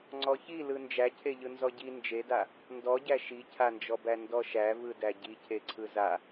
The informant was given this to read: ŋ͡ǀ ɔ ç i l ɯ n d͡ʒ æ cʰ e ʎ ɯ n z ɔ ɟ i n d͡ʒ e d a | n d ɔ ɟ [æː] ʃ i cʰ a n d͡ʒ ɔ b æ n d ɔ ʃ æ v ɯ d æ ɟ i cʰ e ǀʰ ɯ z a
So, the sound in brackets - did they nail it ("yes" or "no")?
no